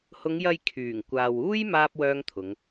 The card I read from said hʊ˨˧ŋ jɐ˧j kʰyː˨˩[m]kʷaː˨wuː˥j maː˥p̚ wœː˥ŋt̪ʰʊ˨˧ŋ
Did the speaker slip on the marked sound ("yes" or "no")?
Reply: yes